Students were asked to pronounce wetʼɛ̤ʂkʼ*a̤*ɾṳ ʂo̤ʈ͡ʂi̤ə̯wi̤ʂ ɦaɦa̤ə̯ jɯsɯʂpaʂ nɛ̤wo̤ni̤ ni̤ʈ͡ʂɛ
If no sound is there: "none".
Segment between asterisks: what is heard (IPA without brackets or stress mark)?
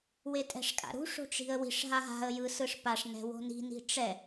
a̰